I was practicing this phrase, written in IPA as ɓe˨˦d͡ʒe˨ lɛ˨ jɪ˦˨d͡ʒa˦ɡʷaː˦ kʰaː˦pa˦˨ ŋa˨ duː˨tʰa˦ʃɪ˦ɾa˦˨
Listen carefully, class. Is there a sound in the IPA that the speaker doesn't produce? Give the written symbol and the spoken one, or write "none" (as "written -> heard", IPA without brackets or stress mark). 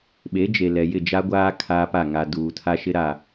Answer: none